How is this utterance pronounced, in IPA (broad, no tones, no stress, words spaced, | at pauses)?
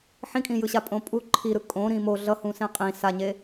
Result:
ħĩkʼĩjɯɕa pʼõpʼu ǃʰiɾɯ kʼõ ɾĩmo ɮʌhũ sẽqʼĩ saɲe